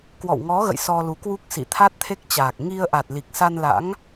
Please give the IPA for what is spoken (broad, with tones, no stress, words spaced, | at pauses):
kwɔ̰˧˨wŋɔ˨˦ɣə̰˧˨j sɔ˧lu˨˦kwu˦˥k̚ sḭ˧˨t̪ʰa˦˥t̚t̪ʰe˦˥k̚t͡ɕaː˨˩k̚ ŋi˧ə̯ʔa˨˩t̚li˨˩k̚ sa˧nla̰˧˥ŋ